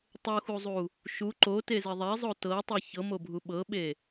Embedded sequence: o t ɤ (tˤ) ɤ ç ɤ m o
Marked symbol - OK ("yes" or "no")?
yes